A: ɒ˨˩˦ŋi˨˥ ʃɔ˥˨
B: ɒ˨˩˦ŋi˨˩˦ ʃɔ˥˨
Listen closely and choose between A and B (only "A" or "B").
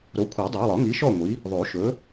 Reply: A